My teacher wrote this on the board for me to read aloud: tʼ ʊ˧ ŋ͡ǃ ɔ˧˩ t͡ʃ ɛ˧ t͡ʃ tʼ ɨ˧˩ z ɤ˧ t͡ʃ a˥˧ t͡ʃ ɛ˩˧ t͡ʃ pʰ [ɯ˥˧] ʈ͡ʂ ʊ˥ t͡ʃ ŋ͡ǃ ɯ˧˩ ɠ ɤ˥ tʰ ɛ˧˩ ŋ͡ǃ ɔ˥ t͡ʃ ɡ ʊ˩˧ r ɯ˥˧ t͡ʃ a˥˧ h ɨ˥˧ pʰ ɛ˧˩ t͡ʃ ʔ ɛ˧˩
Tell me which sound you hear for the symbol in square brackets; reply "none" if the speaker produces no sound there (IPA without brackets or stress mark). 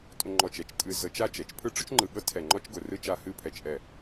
ɯ˥˧